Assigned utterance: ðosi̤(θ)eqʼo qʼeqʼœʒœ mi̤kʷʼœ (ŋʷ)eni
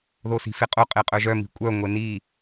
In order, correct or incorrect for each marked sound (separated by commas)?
incorrect, correct